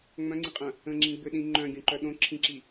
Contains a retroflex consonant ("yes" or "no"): no